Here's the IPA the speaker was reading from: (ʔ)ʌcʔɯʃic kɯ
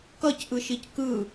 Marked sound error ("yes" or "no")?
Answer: yes